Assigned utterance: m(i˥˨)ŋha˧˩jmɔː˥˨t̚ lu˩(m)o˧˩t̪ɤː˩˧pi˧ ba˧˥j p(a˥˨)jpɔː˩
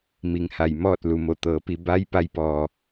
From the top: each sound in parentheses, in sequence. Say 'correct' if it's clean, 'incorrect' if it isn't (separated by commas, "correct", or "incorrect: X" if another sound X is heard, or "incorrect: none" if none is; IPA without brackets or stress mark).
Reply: incorrect: i˩˧, correct, incorrect: a˧˥